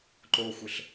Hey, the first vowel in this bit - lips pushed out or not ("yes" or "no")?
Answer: yes